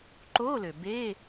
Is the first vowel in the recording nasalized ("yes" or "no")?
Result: no